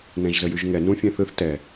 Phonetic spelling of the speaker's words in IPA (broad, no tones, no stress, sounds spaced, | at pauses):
n ɛ̃ ʒ z ə j y ʒ ŋ ɛ n ũ fʲ ɛ̃ θ ɯ θ t ɛ